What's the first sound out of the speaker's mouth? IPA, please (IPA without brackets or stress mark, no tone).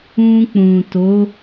ũ